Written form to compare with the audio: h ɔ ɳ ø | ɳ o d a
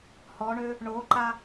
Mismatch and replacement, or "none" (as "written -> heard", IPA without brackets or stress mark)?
d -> ǃ